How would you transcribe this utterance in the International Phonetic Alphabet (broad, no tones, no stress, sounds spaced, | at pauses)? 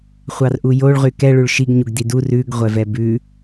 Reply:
χʷ ɑ r ʔ u j o ɭ ʁ y k ɛ ɭ ʉ ɭ ʃ i ɡ ɲ u ɡ d i d u r ʉ ɡ ʁʷ ɛ v ɛ b ʉ